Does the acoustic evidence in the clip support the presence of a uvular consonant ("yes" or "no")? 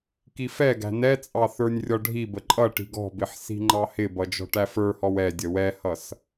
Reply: no